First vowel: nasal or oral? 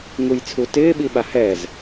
oral